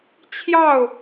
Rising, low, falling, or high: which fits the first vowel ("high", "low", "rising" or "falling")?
falling